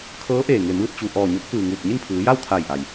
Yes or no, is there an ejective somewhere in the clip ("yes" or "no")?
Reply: no